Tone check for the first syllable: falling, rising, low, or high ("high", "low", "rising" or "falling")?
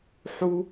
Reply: high